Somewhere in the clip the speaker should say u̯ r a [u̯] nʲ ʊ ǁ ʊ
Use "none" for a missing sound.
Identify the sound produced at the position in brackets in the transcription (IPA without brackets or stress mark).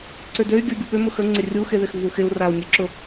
u̯